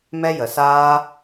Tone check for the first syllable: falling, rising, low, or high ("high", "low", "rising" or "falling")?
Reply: high